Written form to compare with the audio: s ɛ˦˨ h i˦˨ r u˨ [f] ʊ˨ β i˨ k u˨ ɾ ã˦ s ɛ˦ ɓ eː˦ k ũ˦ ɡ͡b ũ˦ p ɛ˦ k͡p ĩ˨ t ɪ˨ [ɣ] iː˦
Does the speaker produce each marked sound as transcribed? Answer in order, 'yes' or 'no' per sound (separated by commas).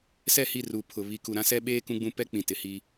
no, no